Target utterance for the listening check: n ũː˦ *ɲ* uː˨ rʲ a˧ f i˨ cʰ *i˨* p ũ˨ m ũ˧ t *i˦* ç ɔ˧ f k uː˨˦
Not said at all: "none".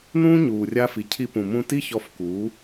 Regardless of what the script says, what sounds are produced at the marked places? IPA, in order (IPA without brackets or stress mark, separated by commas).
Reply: ɲ, i˧, i˦